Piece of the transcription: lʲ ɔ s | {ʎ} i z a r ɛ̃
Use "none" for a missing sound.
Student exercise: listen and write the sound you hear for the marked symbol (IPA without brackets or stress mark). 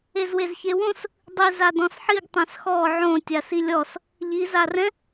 ʎ